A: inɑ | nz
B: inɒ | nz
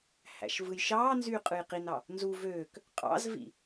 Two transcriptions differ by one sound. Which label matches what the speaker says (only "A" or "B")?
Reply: A